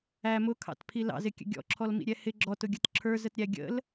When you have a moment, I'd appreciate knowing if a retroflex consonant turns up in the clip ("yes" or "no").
no